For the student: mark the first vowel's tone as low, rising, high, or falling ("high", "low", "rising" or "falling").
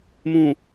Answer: low